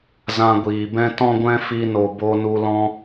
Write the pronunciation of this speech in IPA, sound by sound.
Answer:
z ã˧ ɡʷ iː˨ b ɛ̃˦ t ɔ̃˦ ɡʷ ɛ̃˦ f i˧ n o˨ b o˧ n u˧ l ɔ̃˦

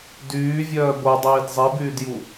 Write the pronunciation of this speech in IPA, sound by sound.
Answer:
d yː vʲ œː b o dˤ iː d zˤ i b yː d j u

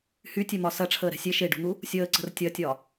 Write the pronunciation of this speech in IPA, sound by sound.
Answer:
h y tʲ ɛ m ɒ s ɐ ʈ͡ʂʰ əː ɾ ɛ̤ sʲ e ʃ e ɖ ṳ n̪ u | sʲ əː ǀ ə̤ r tʲ ɐ tʲ ɒ

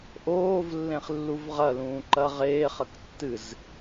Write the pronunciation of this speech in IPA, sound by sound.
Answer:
ʔ oː v lː ẽ χ lː u v ʁ ɐ l ũː ǃ ɐ ʁ eː χ ɐ k tː ɨ z

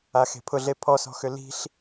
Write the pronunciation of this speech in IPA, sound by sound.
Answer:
a x e̤ pʰ ʊ ɮ e pʰ ɔ s ɔ̤ x ʏ l i̤ ɬ

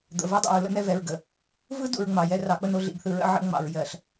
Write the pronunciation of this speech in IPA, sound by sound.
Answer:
d̪ ə̰˨ v ɜ˦ dˤ o̰˨ ɹ l ə̰˦ n ɛ˦ v ɛ˨ ɹ ɡ ə˨ | v ɯ˦ d ṵ˨ ɹ ŋ͡m ɑ˨ j ɛ˦ r ɑ˨˦ k͡p ə˦ n o˦˨ ɮ ḭ˨ ɡ θ ɯ˨ ɹ ə̰˦ ʕ ə̰˦ ŋ͡m ɑ̰˨ ɹ j ɜ˨ ɬ

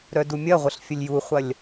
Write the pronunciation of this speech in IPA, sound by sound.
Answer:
ɾ œ d u mʲ ɐ ʁʷ ə ɬ fʲ ə lʲ j u χʷ ɐ lʲ

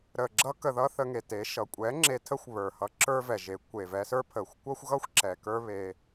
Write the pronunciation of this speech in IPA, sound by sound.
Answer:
ɾ ə˨ ɡ͡ǁ ʌ˧ k ə˨ ð ʌ˧ θ ə˧ ŋ e˨ t e˨˦ ʃ ʌ˨ kʷʼ ɛ˨˦ ŋ͡ǁ e˧ tʰ ə˦ xʷ β ə˞˨ h ʌ˧ ǁ ə˞˦ v ɛ˨ ʒ e˨˦ kʷ e˨ v ɛ˧ s ə˞˦ pʰ ə˨ xʷ kʷ ʌ˦ xʷ ɣ ʌ˦ xʷ ǁ ɛ˨ k ə˞˦ β e˧

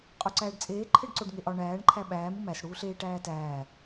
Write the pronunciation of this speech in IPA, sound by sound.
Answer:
qʼ o ǀ æː ɖ t͡sʼ eː ǃʰ e ɖ ǀ o ɖ ŋ e ʔ ɒ ɳ æː ɳ ǃʰ æ ɓ æː m u m æ s ɽ uː ɬ eː ʈ æː t æː

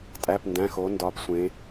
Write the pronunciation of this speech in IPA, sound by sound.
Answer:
tʼ æ˩˧˩ p n d æ̃˩˧˩ x o˩˧ n d ɒː˩˧ p sʷ ẽ˩˧

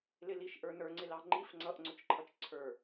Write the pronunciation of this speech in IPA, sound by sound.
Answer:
l ɪ l i ʃ ʔ ə˞ n ə˞ ŋ͡ǀ ɪ l ɑ ŋ͡ǃ i f ŋ͡ǀ ʌ ʔ ŋ͡ǀ ʊ t͡ʃ ǃʰ ʌ t͡ʃ ǀʰ ə˞

